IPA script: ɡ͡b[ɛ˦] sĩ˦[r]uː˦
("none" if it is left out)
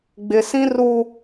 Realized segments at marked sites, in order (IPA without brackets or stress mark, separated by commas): ɪ˦, r